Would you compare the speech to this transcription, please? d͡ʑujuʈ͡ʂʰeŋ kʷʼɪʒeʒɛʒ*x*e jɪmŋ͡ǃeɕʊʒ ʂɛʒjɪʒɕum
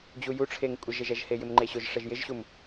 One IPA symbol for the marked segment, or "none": h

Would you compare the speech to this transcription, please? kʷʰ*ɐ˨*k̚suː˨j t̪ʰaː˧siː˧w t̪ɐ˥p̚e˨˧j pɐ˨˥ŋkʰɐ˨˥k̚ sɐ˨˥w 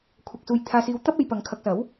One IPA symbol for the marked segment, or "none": ɐ˨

